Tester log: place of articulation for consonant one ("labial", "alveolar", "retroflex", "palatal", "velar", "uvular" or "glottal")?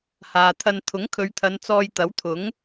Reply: glottal